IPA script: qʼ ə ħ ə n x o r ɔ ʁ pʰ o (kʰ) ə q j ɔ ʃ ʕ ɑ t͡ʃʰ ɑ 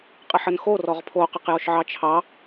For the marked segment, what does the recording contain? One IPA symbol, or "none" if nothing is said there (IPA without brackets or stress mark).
q